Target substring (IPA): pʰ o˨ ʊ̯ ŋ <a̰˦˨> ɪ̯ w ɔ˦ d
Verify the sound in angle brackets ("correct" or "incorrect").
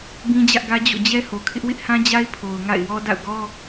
correct